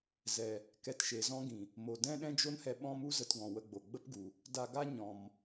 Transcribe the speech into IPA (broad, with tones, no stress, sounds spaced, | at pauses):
z ɛ˨ | k ɛ˧ t ʃ e˨ z ɔ̃˦ ɡ ĩ˨ | m o˨ d ɛ̃˦ ɗ ɛ̃˦ d͡ʒ o˦ n h ɛ˧ ɓ ɔ̃˦ m u˦ z ə˧ t ɡ ɔ̃˨ w ə˧ ɡ͡b o˨ ɡ͡b ə˦ p ɡ u˨ | d a˧ ɡ a˦ ɲ ɔ̃˨ m